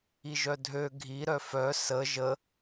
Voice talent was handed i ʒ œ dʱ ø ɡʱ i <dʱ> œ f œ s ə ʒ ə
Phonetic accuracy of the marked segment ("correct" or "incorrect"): incorrect